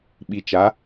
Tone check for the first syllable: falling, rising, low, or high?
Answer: low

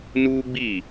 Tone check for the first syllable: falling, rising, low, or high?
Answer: high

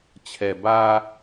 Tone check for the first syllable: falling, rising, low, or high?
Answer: low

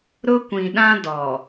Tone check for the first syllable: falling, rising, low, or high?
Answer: high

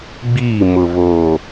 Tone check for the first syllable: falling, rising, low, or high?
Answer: falling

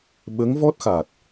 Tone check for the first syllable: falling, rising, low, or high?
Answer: rising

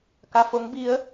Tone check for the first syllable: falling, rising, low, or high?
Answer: low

